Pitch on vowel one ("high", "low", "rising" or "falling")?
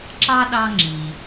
high